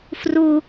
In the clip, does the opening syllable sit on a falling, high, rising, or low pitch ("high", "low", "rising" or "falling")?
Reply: high